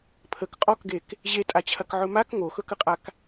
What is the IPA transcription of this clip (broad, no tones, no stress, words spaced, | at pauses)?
pʰək qʼɔkɡek | ʑetʼat͡ɕʰɐkʕɵ mak ŋoxɵkəqʼak